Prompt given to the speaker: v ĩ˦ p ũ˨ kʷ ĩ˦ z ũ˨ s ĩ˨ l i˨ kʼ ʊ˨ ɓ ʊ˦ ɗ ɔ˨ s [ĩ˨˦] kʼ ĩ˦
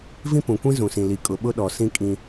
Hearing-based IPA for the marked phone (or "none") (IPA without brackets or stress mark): ĩ˦